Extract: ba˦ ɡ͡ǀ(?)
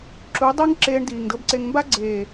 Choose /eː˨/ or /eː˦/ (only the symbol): eː˨